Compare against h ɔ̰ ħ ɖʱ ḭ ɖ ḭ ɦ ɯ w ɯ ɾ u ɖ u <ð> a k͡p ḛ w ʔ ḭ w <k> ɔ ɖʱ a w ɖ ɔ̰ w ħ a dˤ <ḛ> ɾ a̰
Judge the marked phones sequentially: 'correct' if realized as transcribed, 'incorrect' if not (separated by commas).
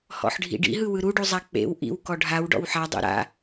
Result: incorrect, correct, correct